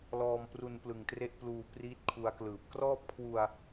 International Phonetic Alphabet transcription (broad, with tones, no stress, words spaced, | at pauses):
lɔː˧mpru˧n plɯ˨˩ŋtre˥˩ʔpluː˧ priː˦˥t̚kʰu˧a̯klɯː˨˩p̚ krɔː˥˩p̚kʰwu˧a̯